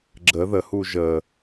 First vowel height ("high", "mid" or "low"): mid